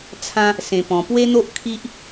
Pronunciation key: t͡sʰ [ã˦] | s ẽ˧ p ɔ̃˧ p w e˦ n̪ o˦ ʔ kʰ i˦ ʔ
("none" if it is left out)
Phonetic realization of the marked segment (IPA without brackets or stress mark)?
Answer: ã˦